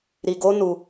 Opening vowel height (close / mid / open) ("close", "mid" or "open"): close